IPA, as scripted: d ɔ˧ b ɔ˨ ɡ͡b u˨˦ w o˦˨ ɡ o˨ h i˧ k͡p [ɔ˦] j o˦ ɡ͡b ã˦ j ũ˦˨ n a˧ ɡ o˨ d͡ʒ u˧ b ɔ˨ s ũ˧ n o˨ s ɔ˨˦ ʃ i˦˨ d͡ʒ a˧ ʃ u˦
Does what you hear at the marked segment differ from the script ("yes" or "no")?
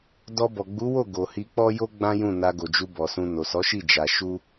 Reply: no